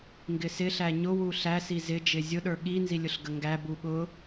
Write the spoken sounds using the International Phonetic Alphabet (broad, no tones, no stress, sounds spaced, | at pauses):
ŋ ɡ ɪ s ɪ ɬ æ ɲ ʊ w u ɬ æ s i z ɪ d͡ʒ ɪ zʲ ʊ ɗ ə˞ ɠ i n z i lʲ ʊ ɬ ɡ ə ŋ ɡ æ b u ɠ ʊ